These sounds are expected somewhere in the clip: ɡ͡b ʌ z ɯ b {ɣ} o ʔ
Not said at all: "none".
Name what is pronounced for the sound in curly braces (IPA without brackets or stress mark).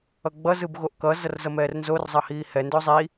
ɣ